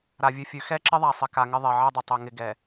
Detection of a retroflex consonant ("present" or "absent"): absent